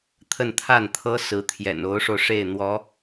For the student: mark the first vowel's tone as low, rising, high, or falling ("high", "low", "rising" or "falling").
falling